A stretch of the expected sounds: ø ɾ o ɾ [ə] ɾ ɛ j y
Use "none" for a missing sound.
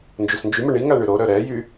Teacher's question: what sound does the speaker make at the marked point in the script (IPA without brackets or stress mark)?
œ